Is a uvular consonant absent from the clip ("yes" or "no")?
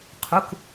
no